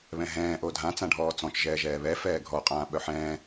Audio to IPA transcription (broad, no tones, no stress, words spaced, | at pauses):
βɛ̃ɦɛ̃ː ʔodʱã t͡sãɖʱɔːt͡sɔ̃t͡ʃ ʒɛːʒɛːβɛ fɛːɡʱɔ qʼãːɓœħɛ̃ː